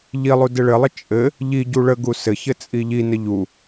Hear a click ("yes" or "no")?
no